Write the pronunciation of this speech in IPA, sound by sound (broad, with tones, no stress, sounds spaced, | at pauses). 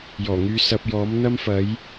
j ɔː˨˩ ŋ yː˧ s ɐ˧ p̚ j ɔː˨˥ m n̪ ɐ˥ m f ɐ˨˥ j